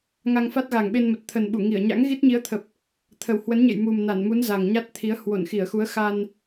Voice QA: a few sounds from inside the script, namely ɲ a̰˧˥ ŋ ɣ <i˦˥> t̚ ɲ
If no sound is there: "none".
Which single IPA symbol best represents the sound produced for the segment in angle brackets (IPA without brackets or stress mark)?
i˦˥